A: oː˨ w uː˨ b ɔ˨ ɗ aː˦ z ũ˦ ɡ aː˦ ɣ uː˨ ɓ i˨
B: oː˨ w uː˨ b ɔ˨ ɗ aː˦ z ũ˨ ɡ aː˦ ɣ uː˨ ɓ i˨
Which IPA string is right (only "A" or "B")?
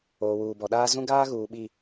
A